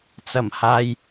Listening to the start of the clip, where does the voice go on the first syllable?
low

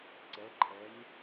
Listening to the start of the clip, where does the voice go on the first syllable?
rising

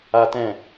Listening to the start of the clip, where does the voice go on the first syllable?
high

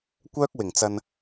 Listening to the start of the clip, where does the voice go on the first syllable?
high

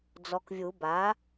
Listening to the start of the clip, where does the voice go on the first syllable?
low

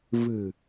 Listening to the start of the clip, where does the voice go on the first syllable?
low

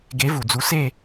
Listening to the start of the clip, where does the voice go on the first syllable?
rising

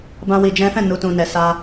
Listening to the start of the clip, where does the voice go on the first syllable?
high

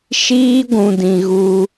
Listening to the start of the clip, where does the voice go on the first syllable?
high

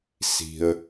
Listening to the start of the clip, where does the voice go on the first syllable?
low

